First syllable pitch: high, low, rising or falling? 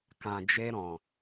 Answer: low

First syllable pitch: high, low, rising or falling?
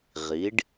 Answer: rising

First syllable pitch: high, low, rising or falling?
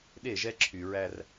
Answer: falling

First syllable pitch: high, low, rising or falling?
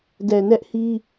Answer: low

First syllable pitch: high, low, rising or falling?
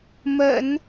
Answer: low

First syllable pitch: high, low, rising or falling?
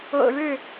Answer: low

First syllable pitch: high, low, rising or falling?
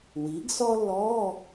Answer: rising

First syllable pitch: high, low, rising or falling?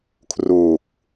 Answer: low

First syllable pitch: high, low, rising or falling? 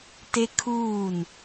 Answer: high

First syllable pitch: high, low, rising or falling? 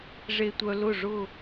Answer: low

